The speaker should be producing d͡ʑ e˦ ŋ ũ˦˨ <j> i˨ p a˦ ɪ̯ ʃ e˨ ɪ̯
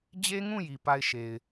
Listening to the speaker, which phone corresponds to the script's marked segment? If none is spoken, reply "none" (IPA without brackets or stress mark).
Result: j